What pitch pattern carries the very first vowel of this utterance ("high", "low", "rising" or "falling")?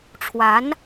rising